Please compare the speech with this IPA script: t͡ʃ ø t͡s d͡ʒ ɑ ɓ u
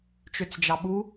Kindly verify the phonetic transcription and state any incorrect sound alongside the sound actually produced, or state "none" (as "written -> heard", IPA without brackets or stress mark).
none